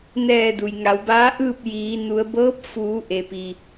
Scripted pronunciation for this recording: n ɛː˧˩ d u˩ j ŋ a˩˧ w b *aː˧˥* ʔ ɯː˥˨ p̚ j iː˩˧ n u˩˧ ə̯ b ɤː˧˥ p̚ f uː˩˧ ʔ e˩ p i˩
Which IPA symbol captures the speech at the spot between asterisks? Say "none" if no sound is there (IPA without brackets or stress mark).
aː˧˥